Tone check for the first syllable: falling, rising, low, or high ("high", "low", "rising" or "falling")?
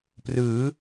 rising